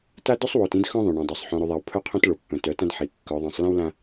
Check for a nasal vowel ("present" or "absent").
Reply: present